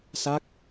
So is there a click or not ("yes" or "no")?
no